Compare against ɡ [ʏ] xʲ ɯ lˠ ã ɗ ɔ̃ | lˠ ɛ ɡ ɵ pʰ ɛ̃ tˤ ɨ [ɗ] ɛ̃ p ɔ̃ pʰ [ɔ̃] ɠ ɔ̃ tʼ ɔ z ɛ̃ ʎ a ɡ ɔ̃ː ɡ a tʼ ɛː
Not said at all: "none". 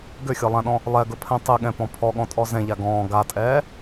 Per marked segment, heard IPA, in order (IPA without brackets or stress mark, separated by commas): ʏ, ɠ, ɔ